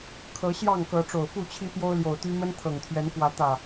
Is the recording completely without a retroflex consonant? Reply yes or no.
no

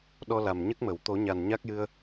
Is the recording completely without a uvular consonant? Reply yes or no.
yes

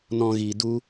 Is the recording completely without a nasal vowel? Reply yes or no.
no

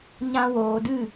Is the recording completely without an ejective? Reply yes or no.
yes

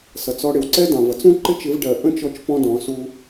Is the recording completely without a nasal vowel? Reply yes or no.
no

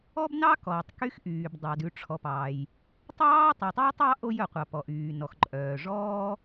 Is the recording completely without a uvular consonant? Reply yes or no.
no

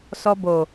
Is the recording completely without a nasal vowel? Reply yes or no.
yes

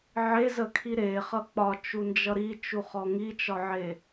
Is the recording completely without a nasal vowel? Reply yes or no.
yes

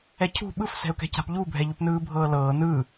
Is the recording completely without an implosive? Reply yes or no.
no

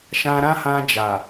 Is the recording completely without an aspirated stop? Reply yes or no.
yes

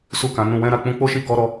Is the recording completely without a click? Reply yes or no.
yes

